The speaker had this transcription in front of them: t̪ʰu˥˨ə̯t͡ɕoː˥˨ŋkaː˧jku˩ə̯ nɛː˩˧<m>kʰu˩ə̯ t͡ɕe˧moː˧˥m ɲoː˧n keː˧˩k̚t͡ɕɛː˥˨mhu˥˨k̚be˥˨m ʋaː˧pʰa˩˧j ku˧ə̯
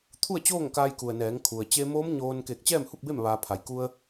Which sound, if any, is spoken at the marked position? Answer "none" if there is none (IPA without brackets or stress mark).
ŋ